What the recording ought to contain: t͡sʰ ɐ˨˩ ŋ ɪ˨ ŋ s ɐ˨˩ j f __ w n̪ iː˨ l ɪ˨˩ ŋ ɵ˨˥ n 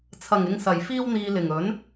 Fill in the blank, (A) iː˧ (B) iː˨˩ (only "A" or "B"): A